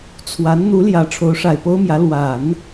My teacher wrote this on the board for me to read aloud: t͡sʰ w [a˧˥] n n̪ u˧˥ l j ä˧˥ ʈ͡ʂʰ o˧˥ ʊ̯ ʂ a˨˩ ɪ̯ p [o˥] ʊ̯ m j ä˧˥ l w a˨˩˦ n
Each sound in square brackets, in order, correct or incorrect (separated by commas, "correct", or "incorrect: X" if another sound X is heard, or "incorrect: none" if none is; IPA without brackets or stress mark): correct, correct